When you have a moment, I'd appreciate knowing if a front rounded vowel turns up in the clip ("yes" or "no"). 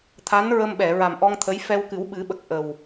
no